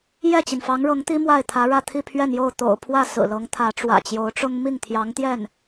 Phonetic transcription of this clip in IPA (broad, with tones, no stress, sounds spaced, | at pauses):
j ɛ˥˩ t͡ɕ i˩ n f ɑ˧˥ ŋ ɻ ɤ˧˥ ŋ t̪ i˥ m w a˥˩ ɪ̯ t̪ʰ ä˧˥ ɻ ä˥˧ t̪ʰ i˥˧ pʰ ɥ ɛ˥˧ n j o˥˩ ʊ̯ t̪ o̰˨˩ ʊ̯ pʰ w ä˥˩ s ɹ̩˨˩ l ɤ˧˥ ŋ t̪ʰ ä˧˥ ʈ͡ʂ w ä̰˨˩ t͡ɕ j o˧˥ ʊ̯ ʈ͡ʂ ʊ˥ ŋ m i˥˩ ŋ t̪ʰ j ɑ˧˥ ŋ t̪ j ɛ˥˩ n